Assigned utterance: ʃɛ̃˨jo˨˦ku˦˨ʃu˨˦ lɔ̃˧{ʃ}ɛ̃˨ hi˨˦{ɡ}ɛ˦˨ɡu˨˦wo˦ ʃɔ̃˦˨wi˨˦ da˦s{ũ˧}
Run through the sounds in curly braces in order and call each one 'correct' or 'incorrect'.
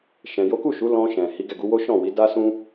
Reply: correct, correct, incorrect

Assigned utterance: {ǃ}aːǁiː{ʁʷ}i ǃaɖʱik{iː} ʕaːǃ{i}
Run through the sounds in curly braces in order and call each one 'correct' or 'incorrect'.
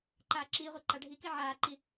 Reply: correct, correct, incorrect, correct

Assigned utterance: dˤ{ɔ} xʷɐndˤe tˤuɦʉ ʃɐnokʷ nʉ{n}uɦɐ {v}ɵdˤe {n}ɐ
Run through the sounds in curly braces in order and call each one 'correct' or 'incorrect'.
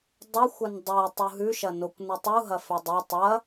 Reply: incorrect, incorrect, incorrect, incorrect

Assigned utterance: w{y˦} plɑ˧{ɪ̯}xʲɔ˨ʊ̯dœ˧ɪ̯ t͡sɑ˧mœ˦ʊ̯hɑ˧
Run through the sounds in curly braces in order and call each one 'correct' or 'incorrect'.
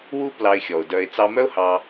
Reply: incorrect, correct

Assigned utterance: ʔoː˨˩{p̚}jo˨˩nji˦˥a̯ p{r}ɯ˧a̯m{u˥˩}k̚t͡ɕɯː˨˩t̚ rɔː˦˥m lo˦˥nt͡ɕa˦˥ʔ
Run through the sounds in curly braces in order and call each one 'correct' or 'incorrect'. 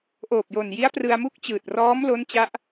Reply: correct, correct, correct

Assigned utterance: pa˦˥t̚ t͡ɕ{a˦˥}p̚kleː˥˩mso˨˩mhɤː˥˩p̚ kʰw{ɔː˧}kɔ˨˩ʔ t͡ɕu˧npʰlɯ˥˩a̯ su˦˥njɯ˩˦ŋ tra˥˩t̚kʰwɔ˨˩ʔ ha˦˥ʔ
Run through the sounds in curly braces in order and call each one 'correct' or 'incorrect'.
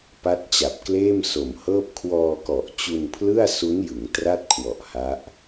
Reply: incorrect, correct

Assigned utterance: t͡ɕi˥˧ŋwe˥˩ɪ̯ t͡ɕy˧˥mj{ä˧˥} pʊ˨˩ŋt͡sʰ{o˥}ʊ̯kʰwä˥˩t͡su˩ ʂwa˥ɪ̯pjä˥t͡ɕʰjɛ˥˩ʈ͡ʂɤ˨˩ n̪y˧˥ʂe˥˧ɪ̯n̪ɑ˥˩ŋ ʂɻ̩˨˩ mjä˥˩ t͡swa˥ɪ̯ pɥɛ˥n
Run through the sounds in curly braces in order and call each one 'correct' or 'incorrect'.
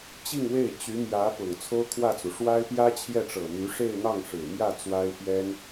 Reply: correct, correct

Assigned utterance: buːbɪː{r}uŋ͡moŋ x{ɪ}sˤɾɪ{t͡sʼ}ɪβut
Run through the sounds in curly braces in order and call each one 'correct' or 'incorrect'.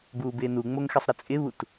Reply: incorrect, correct, correct

